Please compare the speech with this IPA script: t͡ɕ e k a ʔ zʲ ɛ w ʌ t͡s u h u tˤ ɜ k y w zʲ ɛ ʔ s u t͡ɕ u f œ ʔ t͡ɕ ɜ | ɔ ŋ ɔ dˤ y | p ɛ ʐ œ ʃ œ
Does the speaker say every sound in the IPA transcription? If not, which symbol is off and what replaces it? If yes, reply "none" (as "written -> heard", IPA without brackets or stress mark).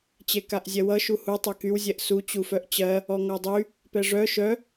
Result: t͡s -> ʃ